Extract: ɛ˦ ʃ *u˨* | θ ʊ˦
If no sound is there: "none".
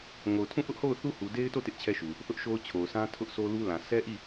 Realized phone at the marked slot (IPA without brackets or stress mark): u˨